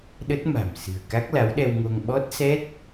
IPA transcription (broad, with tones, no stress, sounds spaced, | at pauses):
ɗ ə˦˥ t̚ m a̤˨˩ m s ɨ̤˨˩ ə̯ k a˦˥ k̚ l a˨˦ w ɗ ɛ˧ w ŋ o˧ ŋ ɓ ɔ˦˥ t̚ s ɛ˦˥ t̚